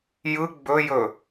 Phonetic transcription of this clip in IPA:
j ɯ ɡ͡b ɵ j ɵ

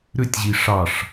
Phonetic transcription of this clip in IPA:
ɾ ʏ tʲ ʑ i ʂ ɑ ʂ

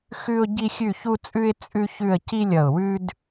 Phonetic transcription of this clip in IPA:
x ʉ˥ ʊ̯ ɟ i˥ xʲ ʉ˥˧ ç u˥ t͡sʼ ʉ˥ ɪ̯ t͡sʼ ʉ˥ ç ʉ˥˧ ə̯ c i˥ lʲ ʌ˧˩ ʊ̯ w ʉ˥ d

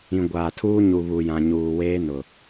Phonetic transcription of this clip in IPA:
ĩ˨ ɡʷ aː˨ tʰ uː˦ ɲ u˨ β u˨ j ã˨ ɲ uː˨ w eː˦ n ʊ˨

